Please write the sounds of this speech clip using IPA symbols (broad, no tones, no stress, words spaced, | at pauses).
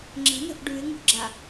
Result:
ŋ͡ǁə̤nə̤ʔ ɖʉɪ̯ŋṳɡ͡ǁa